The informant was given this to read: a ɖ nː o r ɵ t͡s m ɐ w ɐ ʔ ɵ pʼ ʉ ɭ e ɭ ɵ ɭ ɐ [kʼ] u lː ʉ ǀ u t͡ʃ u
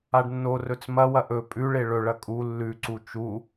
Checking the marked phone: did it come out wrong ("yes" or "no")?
no